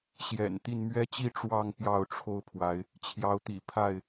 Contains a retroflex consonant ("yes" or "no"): yes